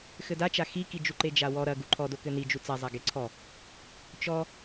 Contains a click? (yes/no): yes